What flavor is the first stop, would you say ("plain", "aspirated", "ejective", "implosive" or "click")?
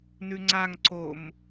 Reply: click